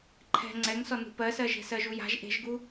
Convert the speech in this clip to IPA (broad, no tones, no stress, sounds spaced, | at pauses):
ǃʰ ɛ̤ ŋ͡ǀ ɛ ŋ s ɔ n ṳ p ɜ s ɜ ʒ e̤ s ɜ ʒ u j a̤ ʒ ʔ e̤ ʒ ɡ u